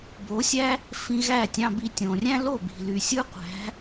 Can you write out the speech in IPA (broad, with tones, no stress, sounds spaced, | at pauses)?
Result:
b o˩˥ sʲ æ˥ | f ĩ˧ ɣ æ˥˩ tʲ ɑ̃˧ b i˧ tʲ õ˩ rʲ æ̃˥ l o˥˩ b i̤˩ l y˩ sʲ ɯ˥ qʷ æ̤˩˥